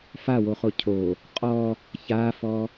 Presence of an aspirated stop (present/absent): present